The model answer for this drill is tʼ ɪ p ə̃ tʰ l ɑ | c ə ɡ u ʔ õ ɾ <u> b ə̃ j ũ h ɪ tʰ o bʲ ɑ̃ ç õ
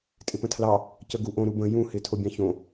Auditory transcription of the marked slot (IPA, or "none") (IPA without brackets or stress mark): u